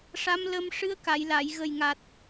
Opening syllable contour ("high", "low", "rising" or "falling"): rising